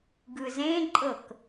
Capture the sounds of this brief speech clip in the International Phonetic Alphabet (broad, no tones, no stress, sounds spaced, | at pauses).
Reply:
ɡ ɯ z ẽ ǃʼ ɤ k